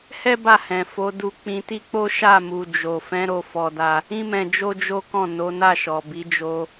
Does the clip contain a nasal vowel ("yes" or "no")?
yes